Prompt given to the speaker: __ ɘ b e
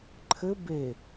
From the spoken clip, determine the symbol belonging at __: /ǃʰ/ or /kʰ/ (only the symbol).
ǃʰ